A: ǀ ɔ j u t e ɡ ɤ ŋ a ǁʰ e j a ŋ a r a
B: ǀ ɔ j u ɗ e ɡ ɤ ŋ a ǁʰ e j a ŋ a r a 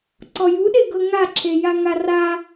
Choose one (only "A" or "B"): B